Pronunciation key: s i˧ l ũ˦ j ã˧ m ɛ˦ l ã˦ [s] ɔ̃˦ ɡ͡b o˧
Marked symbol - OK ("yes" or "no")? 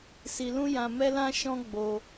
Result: no